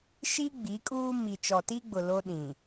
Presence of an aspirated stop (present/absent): absent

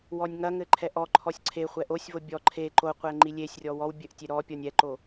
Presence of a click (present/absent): present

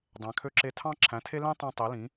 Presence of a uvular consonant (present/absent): absent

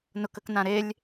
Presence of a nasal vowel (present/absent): present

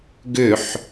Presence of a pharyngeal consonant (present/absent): present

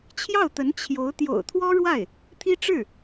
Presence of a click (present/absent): absent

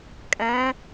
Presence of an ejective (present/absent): present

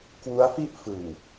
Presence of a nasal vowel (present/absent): absent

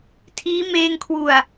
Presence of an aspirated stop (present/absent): present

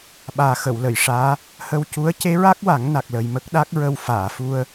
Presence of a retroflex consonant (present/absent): present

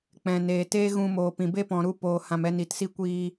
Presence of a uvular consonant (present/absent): absent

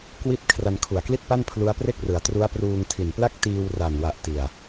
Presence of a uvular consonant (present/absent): absent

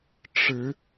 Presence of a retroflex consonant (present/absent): present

